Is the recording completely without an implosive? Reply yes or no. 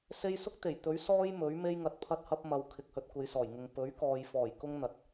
yes